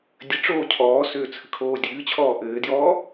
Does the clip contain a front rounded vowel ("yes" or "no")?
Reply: yes